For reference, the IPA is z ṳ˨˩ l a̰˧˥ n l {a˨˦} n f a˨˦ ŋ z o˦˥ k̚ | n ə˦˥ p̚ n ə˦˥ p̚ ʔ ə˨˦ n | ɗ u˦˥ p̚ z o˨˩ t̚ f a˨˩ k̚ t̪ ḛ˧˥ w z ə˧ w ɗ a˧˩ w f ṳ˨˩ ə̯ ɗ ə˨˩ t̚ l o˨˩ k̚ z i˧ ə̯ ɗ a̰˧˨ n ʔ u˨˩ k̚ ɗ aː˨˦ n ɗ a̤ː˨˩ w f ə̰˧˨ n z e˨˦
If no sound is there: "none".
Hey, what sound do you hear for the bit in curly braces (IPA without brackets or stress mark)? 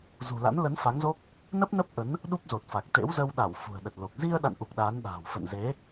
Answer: ə˨˦